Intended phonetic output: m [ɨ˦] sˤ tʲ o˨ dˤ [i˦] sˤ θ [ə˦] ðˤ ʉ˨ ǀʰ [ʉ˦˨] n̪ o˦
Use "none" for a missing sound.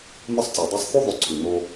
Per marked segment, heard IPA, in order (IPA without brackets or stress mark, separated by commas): ɨ˦, i˦, ʉ˦, ʉ˨